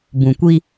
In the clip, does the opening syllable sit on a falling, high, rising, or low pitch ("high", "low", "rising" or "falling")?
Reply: low